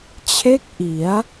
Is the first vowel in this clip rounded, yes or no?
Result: no